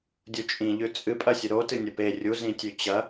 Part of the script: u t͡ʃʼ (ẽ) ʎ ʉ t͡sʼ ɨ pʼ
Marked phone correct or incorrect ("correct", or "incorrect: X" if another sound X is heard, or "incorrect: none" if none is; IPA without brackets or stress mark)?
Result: incorrect: ĩ